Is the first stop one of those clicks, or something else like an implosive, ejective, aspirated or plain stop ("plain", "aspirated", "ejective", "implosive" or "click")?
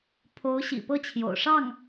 aspirated